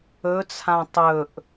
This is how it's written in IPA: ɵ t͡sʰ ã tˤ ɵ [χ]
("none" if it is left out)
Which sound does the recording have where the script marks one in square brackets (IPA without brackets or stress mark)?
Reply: ʔ